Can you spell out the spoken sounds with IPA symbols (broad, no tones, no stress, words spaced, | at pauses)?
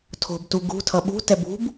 tʰo̤btu ɡṳtʰʌ ɓṳtɛb ṳb